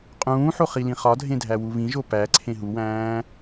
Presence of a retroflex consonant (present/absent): absent